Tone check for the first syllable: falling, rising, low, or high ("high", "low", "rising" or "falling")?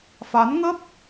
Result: rising